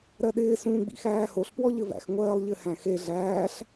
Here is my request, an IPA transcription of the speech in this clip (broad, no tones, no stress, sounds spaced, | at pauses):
ɾ ɜ ɗ ɪː s ũː ɡ͡b ḭ x æː h o ɬ p w ɔ ʎ ɘ v æ̰ x ŋʷ ɜː lˠ ʎ ɘ h æ̃ x e ɮ æː ɬ